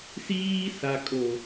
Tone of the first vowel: high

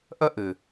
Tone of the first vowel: high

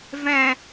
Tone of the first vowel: low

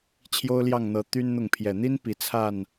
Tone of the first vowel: high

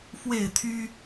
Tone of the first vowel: falling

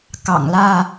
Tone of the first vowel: low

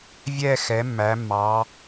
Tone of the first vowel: falling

